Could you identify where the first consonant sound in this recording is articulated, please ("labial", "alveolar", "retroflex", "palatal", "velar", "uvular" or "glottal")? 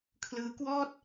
velar